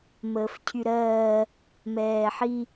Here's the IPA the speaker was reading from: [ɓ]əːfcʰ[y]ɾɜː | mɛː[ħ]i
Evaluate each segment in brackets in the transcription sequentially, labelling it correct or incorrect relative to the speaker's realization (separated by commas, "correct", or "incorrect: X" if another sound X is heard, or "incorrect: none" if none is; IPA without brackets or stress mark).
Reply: incorrect: m, correct, correct